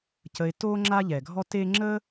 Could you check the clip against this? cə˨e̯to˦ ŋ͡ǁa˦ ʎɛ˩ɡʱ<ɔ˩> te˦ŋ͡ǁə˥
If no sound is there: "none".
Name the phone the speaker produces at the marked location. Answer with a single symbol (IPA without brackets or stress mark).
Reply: ɔ˦